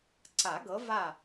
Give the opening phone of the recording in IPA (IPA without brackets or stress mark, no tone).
ǀ